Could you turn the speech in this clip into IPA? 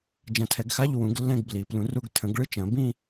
d͡ʒɐ̃˨˩˦tʰɛ˨˩˦ɡxa˧˥˧ʎ wũ˨˩˦ɡ lːɛ̃˥˧ɡbli˨˩˦ plũ˨˩˦ru˧˥˧ɡ tʰə̃˨˩˦ɡ ɭɨ˥˧t͡ʃɐ̃˨˩˦bĩ˥˧

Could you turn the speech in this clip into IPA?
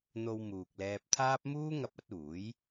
n̪o˧w muː˨k̚lɛː˧p̚t̪ʰaː˥p̚ muː˥ŋɐ˧p̚ɐ˨˥t̚uː˨˥j

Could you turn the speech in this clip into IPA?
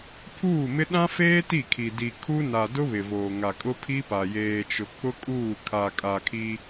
pʰuː˦˨mɪ˦ ɗã˦feː˦ ti˦˨kʰi˨ di˨ kʰu˦ na˨dʊ˦ βɪ˨voː˨ŋa˨kʼʊ˦ pʰi˦pa˨ jeː˨t͡ʃʊ˨ k͡pʊ˦kʼuː˦˨ kʰa˨kʼa˨kʰi˦

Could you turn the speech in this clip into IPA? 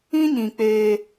ĩ˦ɲĩ˨ k͡peː˦

